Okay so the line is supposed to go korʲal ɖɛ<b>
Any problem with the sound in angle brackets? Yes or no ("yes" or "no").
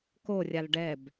no